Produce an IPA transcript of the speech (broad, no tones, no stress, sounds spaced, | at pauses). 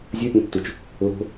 zʲ u pʲ ẽ tː u t͡ʃ | l o̤